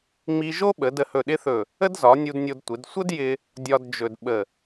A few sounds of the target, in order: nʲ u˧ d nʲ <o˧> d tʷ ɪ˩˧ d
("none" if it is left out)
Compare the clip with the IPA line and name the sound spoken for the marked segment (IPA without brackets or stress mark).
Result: o˧